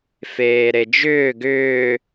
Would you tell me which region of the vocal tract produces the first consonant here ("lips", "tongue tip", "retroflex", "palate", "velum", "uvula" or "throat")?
lips